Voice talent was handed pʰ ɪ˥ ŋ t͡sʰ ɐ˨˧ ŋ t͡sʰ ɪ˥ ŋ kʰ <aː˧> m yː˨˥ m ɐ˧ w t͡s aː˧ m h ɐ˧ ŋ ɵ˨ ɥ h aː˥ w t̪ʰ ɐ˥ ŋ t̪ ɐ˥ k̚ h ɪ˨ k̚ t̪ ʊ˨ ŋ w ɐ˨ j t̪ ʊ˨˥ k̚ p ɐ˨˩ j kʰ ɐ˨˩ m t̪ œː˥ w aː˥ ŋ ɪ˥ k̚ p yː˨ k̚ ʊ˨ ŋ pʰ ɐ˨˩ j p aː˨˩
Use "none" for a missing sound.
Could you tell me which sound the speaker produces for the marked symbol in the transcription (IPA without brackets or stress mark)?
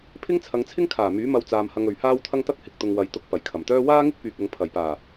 aː˨˩